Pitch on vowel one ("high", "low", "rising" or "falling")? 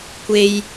low